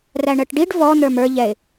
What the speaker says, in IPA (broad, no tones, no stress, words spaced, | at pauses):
ræɳɜʈɖiɖ vɔ n̪ə˞mə˞ ʎɛɪ̯